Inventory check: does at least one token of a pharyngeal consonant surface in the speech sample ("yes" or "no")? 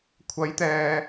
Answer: no